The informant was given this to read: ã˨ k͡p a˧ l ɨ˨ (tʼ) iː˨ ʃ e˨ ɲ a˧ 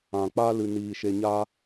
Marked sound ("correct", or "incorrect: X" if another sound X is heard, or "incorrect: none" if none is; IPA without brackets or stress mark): incorrect: n